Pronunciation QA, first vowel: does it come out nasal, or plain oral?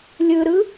oral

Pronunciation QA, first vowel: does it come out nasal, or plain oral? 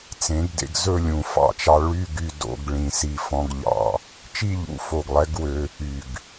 nasal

